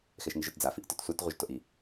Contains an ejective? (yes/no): no